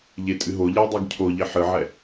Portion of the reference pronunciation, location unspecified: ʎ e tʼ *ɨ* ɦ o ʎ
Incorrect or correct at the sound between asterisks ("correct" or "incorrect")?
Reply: correct